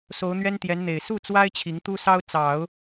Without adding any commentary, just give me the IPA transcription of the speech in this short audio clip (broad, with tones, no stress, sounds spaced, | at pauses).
s o˧˥ ʊ̯ n̪ ɥ ɛ˥ n t̪ j ɛ˧˥ n n̪ e˨˩ ɪ̯ s u˥˩ t͡s w a˥ ɪ̯ t͡ɕʰ i˧˥ ŋ t̪ u˥ s ɑ˥ ʊ̯ t͡s ɑ˨˩˦ ʊ̯